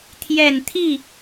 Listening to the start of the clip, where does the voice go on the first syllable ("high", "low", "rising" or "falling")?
low